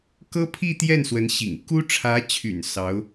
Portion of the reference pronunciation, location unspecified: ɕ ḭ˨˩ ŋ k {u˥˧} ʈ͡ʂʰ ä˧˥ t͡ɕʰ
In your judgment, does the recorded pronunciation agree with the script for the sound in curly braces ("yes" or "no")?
no